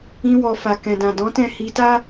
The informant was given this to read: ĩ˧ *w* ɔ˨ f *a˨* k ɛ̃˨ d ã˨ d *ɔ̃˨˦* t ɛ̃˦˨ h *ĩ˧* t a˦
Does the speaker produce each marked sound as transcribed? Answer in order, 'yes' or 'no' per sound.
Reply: yes, yes, yes, no

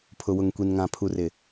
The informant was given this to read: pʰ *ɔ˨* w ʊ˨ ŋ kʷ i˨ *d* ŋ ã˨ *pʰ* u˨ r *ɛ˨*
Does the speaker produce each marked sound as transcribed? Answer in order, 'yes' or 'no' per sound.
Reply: no, no, yes, no

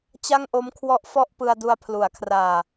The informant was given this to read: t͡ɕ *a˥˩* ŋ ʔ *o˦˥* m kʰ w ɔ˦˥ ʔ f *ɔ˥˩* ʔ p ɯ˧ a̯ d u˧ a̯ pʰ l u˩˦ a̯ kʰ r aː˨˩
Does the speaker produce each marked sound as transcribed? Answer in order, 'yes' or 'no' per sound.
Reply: yes, yes, yes

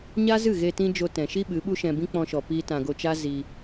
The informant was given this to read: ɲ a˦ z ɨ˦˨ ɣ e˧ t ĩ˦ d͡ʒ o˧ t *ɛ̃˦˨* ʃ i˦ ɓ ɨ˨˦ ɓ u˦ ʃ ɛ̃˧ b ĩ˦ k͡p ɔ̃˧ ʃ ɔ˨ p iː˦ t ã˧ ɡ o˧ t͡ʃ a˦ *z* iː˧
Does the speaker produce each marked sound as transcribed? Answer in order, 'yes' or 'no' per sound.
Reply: no, yes

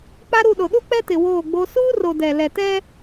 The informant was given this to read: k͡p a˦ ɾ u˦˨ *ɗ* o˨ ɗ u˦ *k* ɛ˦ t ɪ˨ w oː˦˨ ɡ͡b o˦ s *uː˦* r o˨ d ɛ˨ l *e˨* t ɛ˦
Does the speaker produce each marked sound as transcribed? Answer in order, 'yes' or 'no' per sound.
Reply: yes, no, yes, no

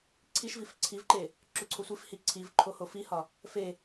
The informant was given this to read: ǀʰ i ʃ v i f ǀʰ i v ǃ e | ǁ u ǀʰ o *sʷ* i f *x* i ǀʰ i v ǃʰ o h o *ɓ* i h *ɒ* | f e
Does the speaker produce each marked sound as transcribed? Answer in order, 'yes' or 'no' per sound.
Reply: yes, no, no, yes

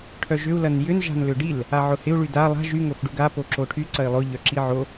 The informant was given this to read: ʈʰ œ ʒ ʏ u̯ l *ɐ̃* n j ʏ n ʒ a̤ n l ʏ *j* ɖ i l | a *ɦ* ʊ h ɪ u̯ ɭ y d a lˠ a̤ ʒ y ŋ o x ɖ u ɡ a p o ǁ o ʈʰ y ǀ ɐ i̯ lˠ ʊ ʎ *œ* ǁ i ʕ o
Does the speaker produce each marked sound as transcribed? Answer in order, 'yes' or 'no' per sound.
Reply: no, no, no, yes

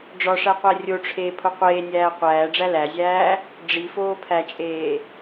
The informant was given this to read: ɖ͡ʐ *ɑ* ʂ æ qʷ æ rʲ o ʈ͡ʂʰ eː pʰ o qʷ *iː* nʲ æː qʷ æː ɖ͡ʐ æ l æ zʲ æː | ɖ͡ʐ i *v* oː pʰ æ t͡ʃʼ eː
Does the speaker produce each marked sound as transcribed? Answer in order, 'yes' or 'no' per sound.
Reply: no, no, no

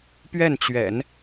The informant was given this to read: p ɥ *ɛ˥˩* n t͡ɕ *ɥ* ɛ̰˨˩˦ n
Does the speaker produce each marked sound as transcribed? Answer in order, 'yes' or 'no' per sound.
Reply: yes, yes

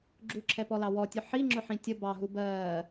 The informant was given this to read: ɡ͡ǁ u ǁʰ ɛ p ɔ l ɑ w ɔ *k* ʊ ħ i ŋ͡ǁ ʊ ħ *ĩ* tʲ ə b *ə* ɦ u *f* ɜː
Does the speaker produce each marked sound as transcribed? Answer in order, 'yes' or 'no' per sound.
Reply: no, yes, no, no

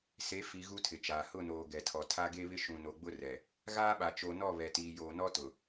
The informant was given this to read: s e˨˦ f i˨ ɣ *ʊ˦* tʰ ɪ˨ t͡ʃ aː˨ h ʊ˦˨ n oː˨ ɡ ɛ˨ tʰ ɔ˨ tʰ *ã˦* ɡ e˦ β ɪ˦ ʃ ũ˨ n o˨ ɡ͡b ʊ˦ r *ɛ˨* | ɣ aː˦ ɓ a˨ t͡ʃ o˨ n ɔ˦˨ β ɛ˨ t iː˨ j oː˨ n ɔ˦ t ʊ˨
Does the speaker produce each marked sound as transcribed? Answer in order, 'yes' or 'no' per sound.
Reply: no, no, yes

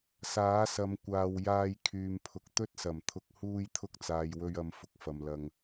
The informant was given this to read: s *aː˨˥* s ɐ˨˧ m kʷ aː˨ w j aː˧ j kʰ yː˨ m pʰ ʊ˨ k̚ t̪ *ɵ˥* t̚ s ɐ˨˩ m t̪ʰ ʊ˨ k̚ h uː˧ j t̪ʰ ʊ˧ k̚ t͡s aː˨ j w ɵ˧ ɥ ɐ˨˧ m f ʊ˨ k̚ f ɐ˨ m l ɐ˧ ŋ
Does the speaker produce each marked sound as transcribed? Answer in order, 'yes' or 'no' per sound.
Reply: yes, yes

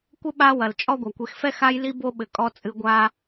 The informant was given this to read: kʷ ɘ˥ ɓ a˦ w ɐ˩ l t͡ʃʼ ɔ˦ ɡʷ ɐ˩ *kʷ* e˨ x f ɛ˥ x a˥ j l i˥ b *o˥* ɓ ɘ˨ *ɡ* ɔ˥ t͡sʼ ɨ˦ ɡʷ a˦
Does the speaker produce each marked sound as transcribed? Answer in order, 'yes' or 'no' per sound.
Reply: yes, yes, no

